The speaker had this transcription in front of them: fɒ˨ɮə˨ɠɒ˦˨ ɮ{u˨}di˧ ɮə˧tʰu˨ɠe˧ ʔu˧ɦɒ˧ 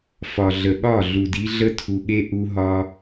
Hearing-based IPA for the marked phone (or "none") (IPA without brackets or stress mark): u˨